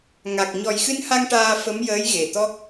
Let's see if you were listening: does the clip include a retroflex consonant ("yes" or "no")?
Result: yes